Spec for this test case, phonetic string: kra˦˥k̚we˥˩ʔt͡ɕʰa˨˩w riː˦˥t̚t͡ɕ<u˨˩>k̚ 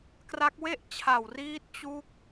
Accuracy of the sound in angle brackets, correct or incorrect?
incorrect